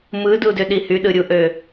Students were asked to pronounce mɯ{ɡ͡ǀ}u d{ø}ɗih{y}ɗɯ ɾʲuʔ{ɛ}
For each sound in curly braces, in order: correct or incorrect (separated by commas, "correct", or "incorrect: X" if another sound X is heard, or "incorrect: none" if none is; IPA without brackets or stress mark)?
incorrect: d, correct, correct, incorrect: ø